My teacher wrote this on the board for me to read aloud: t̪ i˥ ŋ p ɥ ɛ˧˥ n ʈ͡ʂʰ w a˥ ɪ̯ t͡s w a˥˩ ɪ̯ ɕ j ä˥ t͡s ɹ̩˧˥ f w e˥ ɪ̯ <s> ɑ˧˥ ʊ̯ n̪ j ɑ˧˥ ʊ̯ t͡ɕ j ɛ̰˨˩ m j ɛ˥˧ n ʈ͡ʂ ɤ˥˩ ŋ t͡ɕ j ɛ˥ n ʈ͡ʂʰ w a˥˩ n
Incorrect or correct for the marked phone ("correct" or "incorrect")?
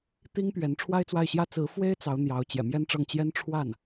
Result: incorrect